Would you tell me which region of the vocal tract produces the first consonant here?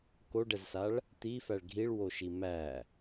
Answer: velum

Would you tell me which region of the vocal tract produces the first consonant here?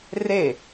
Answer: tongue tip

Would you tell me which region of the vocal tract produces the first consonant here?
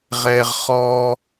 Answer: uvula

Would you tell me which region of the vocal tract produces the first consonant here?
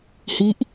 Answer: throat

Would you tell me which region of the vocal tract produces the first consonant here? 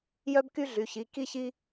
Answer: palate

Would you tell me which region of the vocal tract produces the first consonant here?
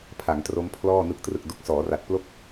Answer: lips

